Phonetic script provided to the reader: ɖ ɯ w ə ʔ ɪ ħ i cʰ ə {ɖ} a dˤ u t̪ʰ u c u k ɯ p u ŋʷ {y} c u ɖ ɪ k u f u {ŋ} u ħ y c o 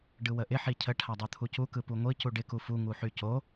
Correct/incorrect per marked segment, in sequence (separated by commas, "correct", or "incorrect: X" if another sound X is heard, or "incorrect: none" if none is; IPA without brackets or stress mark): incorrect: ʈʰ, incorrect: i, correct